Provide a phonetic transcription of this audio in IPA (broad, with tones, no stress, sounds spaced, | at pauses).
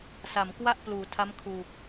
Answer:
s a˩˦ m k w a˥˩ ʔ p l uː˩˦ tʰ a˦˥ m kʰ uː˨˩ k̚